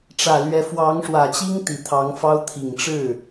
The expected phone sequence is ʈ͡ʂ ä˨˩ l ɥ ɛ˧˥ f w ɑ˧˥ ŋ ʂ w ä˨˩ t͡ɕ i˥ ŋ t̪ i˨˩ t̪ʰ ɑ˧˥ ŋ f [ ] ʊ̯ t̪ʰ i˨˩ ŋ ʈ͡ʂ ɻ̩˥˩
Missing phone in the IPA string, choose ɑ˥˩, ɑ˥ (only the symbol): ɑ˥